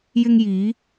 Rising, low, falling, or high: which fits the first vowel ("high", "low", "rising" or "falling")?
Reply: high